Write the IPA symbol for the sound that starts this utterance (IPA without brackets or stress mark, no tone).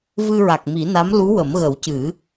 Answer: v